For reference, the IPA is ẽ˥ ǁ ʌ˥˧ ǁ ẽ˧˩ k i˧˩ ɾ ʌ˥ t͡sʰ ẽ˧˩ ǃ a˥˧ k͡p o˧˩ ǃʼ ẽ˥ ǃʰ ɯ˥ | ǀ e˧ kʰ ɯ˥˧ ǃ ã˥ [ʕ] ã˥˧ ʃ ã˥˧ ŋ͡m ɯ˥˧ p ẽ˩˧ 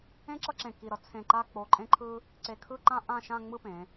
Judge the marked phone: incorrect: ʔ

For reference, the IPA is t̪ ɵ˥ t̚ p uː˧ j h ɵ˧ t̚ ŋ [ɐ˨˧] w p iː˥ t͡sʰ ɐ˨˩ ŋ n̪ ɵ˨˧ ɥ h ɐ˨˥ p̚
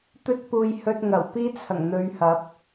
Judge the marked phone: incorrect: ɐ˨˩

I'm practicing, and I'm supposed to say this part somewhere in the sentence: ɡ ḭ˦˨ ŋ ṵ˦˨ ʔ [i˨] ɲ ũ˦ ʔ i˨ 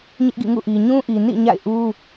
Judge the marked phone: correct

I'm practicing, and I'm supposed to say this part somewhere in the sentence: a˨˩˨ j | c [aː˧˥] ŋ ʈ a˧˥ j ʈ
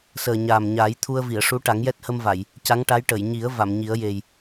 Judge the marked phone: incorrect: a˧˥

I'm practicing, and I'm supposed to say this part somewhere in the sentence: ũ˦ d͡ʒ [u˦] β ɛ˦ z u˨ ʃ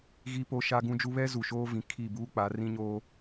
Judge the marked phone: correct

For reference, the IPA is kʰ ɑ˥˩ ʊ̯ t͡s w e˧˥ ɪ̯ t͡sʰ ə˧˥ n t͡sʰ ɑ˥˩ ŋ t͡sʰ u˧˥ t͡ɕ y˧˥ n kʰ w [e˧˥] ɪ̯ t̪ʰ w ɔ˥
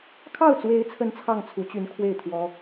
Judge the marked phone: incorrect: e˥˩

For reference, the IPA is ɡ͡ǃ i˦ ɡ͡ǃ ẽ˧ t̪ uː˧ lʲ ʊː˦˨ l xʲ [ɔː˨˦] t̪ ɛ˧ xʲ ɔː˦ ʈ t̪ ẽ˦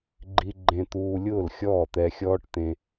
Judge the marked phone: incorrect: ɔː˦˨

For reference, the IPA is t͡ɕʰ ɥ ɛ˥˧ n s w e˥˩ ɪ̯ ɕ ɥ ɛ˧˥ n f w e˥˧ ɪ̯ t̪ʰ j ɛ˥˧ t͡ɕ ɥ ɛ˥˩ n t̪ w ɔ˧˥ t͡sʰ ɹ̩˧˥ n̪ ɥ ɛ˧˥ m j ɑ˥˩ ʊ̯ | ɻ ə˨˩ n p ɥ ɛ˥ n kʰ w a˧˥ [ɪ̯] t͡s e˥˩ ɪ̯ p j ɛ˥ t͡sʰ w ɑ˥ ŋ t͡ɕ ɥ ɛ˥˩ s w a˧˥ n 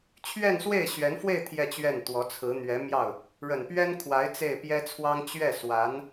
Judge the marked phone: correct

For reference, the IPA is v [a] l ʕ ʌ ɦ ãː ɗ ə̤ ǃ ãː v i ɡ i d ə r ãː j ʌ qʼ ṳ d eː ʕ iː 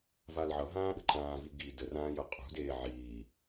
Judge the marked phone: correct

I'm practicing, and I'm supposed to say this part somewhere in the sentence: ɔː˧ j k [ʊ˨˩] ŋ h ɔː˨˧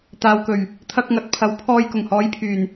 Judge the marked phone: correct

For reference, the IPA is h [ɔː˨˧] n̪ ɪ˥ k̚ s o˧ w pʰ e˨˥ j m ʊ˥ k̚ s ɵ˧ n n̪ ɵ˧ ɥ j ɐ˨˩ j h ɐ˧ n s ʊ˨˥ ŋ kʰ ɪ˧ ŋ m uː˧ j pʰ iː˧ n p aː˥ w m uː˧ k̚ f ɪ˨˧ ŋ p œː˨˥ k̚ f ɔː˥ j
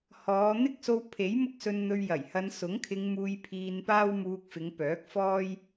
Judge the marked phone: correct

